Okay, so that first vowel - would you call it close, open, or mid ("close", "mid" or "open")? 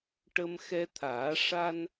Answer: mid